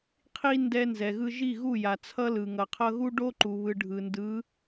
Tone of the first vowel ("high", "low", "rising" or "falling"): high